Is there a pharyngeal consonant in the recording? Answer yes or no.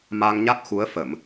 no